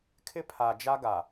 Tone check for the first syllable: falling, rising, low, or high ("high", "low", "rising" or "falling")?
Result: high